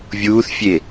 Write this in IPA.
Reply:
vʲ uː θ fʲ e

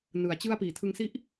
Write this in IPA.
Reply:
n ɯ˨˩ a̯ t͡ɕ ɯ˦˥ a̯ p iː˨˩ tʰ ɯ˧ ŋ s i˦˥ ʔ

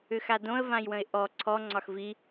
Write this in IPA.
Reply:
ʏ x a d õ ə̯ v ã j w ə̃ ɪ̯ ʔ ɔ ǀʰ ɔ ŋ͡ǀ ɒ x v i

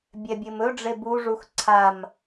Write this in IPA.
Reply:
bʲ ɛ bʲ ɘ m ɵ ɖ͡ʐ e b u ʐ u x ǀʰ a m

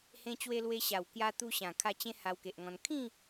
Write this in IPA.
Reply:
h ẽ˧ t͡ɕ w e˧ l w e˧ ɕ a˨˩ w k j a˧ t̪ u˧ ɕ ã˨˩ kʰ a˧ t͡ɕ ẽ˦ h a˧ w k e˨ ʔ ŋ ɔ̃˧ n kʰ ĩ˥˧

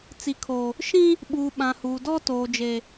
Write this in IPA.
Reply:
t͡s i˨ kʰ oː˨ | ʃ ĩ˦ | ɓ uː˨ ɓ ã˨ h uː˨ d ɔ˦ t oː˨ d͡ʒ e˨

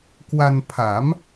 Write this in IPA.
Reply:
k w a˧ n pʰ a˩˦ m

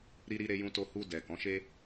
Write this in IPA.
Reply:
ɾ i˧ ɾ i˧ ɾ e˧ j ũ˧ t o˧ h u˧ d ɛ˨ k ɔ̃˨˦ ʃ e˦

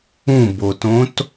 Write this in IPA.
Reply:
ũ b o t õ t

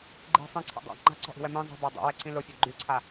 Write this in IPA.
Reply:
ɡ͡ǃ i̤ sˤ ĩ ǀʰ a̰ dˤ a̰ ŋ͡ǃ a̤ ǀ ɔ̤ ʔ i̤ w ɛ m ĩ zˤ i̤ b a dˤ o̰ w ɛ ǀ ĩ l o fʲ ɛ ɡ͡ǃ y ǀʰ a

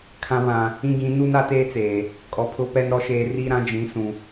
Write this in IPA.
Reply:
kʰ ã˨ β ã˨ | ĩ˦ ɡ ĩ˨˦ n u˦ n a˦ t eː˦ t͡s eː˨ | kʼ ɔ˨ pʰ ʊ˦ p ɛ˦ n ɾ ɔ˨ ʃ eː˨ r i˦ ɾ ã˦ d͡ʒ ĩ˨˦ s ũ˨

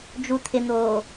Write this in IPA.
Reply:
d͡ʒ u t̪ʰ ɪ n̪ oː

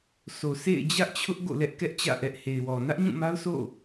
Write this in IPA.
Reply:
sʰ o˨ sʰ ḛ˦˨ ɪ̯ d͡ʑ ä˦ ʔ t͡ɕʰ ʊ˦ ʔ ɡ o̰˦˨ l ɛ˦ ʔ k ɛ˦ ʔ t͡ɕ ä̰˦˨ ʔ ɛ˦ ʔ h e˨ ɪ̯ w ɔ˨ n ä˦ ʔ ɲ ũ˦˨ m a˦ ʊ̯ sʰ o̰˦˨

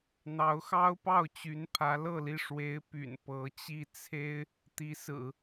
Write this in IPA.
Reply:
n̪ ɑ˧˥ ʊ̯ x ɑ˥ ʊ̯ p ɑ˥˩ ʊ̯ t͡ɕ y˧˥ n pʰ ä˧˥ l ɤ˥˧ l i˥˩ ʂ w e˧˥ ɪ̯ p y̰˨˩ n p ɤ˧˥ t͡ɕ i˥˩ t͡sʰ e˥ ɪ̯ | t̪ i˧˥ s ɹ̩˨˩˦

